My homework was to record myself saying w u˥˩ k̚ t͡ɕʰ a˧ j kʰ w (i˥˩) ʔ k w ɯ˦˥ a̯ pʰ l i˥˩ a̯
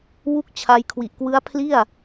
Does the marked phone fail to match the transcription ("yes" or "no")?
yes